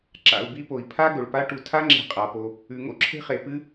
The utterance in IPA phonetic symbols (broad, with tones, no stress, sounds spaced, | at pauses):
ǁ a̰˨ u̯ b i˦ p o˩ i̯ pʰ a˦ ɡ ɵ˩ ɭ p a˦ ʈ u˨ tʰ a˦ ŋ͡ǁ e̤˨ qʼ a˩ p o˨ | ʉ˩ ŋ o̰˥ ǁʰ e̤˦ χ e˩ p ɨ˥